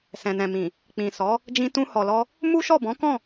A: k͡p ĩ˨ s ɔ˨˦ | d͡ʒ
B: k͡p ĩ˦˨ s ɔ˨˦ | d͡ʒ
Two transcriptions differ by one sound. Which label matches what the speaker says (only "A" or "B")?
A